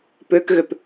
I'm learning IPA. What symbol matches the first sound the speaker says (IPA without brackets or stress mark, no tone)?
p